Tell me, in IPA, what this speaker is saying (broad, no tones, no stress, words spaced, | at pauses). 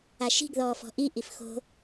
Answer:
aʃi̤ɡ ðɔːfɔ̤ʔi ʔifxo̤